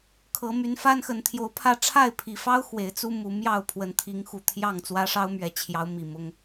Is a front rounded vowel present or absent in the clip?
present